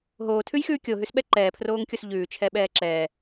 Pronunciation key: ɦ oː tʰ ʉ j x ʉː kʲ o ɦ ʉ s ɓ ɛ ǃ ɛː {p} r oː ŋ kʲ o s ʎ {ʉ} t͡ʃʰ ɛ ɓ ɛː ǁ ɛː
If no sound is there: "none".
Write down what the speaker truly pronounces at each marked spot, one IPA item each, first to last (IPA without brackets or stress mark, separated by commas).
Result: pʰ, ʉː